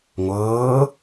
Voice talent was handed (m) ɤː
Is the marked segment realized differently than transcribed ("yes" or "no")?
yes